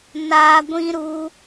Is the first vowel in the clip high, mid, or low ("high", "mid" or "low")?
low